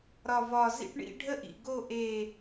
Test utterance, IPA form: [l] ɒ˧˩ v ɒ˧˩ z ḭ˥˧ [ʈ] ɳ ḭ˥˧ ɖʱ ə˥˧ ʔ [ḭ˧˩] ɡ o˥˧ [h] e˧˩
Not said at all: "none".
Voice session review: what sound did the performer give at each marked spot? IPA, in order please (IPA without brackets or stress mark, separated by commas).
ɾ, ʈ, ḭ˧˩, ʔ